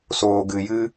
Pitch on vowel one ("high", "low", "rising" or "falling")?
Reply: low